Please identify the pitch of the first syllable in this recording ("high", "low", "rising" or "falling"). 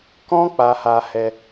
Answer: high